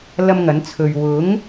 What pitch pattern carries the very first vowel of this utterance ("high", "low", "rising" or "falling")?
high